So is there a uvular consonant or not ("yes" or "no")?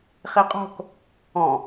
yes